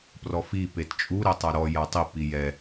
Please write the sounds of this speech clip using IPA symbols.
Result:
p r ɔ f i p e t t͡ʃʼ u ɾ ɛ tˤ a ɾ ɔ j a tˤ i p i j ɛ

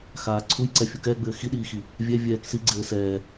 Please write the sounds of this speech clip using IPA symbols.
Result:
x aː ǀʰ u j ǀ ɛ fʲ u k ɛː ɡ͡b ɘː x i ɗ iː x i | vʲ ɛ vʲ ɛː k s i ɡ͡ǀ ɘː s ɛː

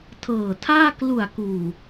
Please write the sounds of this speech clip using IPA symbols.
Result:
tʰ ɤː˨˩ tʰ aː˥˩ k l u˨˩ a̯ k uː˨˩

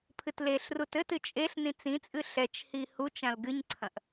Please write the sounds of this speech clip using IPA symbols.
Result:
pʰ ɨ t l e ɬ r u t ɘ t ɨ t͡ʃʼ e ɬ n ĩ t͡s ĩ t͡sʼ ɨ ɬ ɛ t͡ʃ h i h u t͡ʃ ã l ɡ ɨ ɲ ǀʰ ɐ̃ ʔ

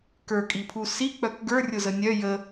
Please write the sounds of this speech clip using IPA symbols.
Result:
k ə˞ kʼ i pʰ u s i k͡p œ k ɡ ə˞ rʲ ʊ z ə nʲ œ j ə

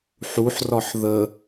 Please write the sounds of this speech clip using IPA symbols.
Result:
ħ u ħ r ɒ ħ ð ə

